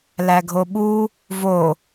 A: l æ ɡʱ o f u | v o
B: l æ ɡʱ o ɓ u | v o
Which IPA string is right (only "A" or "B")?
B